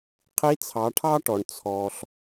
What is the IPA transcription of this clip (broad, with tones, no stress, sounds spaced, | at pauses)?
qʰ i˧˥ t͡sʰ ɑ˩˧ ʈʰ ɑ˥ ʈ ɔ˩ ɳ t͡sʰ ɔ˩ ɬ